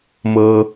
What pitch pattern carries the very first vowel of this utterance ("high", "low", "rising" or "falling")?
high